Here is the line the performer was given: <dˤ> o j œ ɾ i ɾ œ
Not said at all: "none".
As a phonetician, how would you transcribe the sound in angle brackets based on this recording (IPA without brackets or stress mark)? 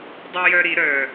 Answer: dˤ